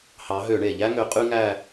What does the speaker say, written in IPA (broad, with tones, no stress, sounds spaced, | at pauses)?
h ɑ˨˦ ɦ ø˧˩˧ ɳ e˩ ʎ æ˦ ŋ ø˨˦ qʼ y˦ ŋ æ˦˨